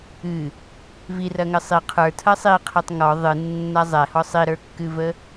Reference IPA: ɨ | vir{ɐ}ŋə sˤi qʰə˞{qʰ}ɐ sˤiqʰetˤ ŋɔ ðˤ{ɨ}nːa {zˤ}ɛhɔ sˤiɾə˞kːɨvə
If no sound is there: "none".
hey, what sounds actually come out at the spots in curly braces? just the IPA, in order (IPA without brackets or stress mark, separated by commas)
ɐ, tʰ, ɨ, zˤ